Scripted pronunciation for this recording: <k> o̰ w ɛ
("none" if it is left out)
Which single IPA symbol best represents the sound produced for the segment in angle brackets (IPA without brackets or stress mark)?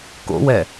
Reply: k